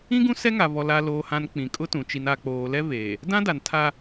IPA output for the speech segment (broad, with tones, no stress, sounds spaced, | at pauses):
ĩ˦ ɡ ũ˦ s ɛ˦ ŋ a˨ v ɔ˨ l a˨ l oː˨ h ã˨ n k͡p ĩ˨ kʼ ʊ˦ t ũ˨ t͡ʃ i˨ n a˨ k͡p oː˨ l ɛ˦ v eː˨ | d ã˦ d a˨ n tʰ a˦